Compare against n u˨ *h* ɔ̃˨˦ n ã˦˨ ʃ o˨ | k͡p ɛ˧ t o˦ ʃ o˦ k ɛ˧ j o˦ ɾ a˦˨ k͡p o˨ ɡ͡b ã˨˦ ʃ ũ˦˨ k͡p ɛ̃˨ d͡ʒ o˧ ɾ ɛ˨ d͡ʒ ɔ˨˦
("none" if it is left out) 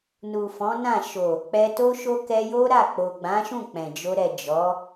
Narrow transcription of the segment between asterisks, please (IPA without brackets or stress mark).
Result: f